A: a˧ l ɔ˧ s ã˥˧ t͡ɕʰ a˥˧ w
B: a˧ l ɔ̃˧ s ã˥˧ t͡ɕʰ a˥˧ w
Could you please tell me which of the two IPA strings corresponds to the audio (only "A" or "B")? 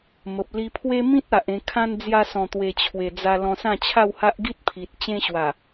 B